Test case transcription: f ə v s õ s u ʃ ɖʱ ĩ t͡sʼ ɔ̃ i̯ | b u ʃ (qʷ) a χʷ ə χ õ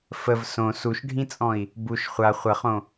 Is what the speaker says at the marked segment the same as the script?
no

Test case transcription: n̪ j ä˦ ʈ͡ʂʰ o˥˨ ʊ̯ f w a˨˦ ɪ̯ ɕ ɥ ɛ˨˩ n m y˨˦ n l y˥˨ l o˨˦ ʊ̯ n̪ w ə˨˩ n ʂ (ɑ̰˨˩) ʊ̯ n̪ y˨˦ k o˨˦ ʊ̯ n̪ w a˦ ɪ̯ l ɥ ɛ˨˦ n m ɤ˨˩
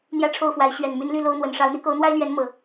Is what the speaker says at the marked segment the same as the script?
no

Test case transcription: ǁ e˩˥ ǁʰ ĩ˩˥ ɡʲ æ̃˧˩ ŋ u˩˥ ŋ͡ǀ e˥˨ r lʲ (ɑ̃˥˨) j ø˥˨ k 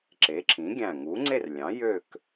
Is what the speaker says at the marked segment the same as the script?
no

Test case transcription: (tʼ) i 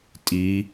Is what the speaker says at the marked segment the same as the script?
yes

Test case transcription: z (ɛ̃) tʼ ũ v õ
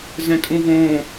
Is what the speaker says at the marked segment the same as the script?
yes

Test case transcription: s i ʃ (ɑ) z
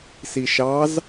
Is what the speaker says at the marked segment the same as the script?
yes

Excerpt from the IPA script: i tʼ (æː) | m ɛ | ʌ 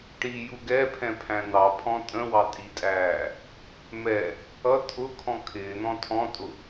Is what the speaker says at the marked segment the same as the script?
yes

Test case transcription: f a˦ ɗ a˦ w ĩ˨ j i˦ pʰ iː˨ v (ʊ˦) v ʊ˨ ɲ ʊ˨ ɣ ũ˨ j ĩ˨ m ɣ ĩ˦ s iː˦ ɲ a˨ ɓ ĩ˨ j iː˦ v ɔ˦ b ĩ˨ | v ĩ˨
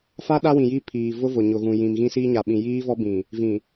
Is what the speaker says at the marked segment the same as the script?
yes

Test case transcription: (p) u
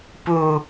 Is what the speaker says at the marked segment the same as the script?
yes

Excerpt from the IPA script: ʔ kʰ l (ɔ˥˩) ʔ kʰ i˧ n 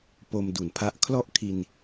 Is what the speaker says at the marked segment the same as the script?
yes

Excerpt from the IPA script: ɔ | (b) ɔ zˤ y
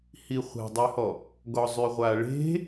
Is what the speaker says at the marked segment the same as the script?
no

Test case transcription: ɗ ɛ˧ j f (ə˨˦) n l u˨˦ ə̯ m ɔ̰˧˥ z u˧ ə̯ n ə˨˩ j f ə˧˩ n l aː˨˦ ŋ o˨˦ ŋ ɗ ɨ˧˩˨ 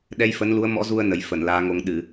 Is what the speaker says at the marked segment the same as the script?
yes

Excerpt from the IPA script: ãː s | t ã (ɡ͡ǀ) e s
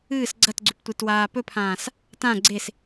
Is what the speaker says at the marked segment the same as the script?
yes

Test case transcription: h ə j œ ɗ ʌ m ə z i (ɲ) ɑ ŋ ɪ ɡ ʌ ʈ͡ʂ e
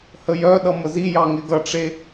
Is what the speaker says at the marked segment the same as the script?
no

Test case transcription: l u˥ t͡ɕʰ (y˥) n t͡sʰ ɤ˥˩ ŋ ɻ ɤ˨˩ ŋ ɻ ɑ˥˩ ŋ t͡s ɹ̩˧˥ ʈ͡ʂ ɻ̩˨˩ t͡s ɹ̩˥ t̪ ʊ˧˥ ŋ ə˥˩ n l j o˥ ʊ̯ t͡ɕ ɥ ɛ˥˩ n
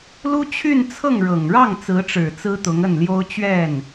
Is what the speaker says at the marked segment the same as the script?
no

